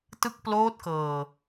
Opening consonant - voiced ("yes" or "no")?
no